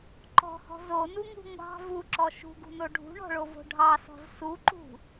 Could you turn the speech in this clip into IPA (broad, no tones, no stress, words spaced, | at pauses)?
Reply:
ǃɔ̤hɔ̤ zonuŋṳ ŋʷɑ̤ vuǁɔ ʃṳɡṳno ɖʱṳɳɔ̤ɭovo̤ ɖʱɑsɔ̤z suǃṳ